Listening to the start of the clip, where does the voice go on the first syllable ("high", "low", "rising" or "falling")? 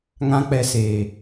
high